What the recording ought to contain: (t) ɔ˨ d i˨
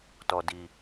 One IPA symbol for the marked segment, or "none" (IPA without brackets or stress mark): t